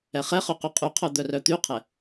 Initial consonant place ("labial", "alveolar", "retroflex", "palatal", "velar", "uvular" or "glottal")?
uvular